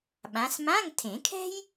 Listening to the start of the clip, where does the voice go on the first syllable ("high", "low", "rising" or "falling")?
rising